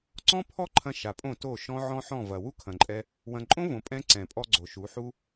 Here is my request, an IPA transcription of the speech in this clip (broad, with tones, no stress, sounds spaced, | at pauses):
ǀ ɔ̃˦ pʰ ɔ˦ ǃʰ ɐ̃˧ ʃ a˨ pʼ õ˦˨ t o˦˨ ʃ ɔ̃˧ ʕ ɔ̃˦ ħ ɔ̃˦˨ v ɐ˨ w u˦ kʰ ɐ̃˨ ǃʼ ɛ˧ | w ɐ̃˦ ǃʼ õ˦ v õ˨ pʼ ɛ̃˧ ǀ ɛ̃˨ pʼ ɔ˧ ɡ͡ǀ o˨ ʃ u˨˦ ħ u˦